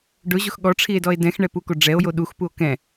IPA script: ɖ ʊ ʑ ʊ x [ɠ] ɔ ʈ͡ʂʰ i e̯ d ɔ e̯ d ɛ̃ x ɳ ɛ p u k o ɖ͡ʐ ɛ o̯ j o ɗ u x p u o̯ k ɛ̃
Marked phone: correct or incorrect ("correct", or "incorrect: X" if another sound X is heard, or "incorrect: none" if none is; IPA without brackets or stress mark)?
correct